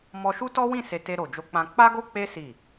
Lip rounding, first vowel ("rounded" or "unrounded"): rounded